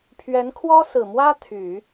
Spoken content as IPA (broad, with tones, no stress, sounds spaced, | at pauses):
pʰ ɥ ɛ˧˥ n kʰ w ɔ˥ s ɹ̩˨˩ m w ä˥ t̪ʰ y˨˩˦